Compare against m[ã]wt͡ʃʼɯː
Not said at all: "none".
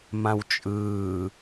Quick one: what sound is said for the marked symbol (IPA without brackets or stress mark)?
ã